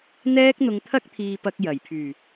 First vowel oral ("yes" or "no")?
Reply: yes